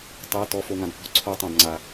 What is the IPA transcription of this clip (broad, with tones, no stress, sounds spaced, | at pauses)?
tˤ ɤ˩˧˩ t ɔ˩˧˩ f o˩ ŋ ã˩ d p ɔ̤˨˦ ǀʰ o˧˩˧ tˤ ã˩ d ŋ͡ǀ a˩